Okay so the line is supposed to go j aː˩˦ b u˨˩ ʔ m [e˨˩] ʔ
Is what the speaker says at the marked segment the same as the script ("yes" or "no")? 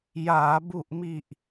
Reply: no